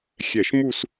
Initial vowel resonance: oral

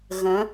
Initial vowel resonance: nasal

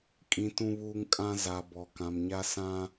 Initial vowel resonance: nasal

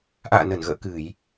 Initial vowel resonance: oral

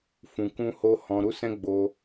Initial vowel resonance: nasal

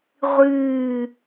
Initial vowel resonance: oral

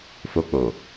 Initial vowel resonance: oral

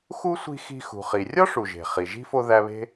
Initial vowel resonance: oral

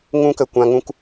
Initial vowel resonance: nasal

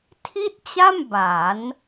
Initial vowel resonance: oral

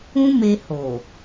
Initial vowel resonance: nasal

